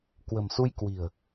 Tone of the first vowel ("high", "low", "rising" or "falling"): low